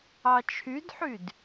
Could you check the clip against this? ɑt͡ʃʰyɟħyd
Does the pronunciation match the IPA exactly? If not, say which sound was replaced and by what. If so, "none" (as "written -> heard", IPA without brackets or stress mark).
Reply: ɟ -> d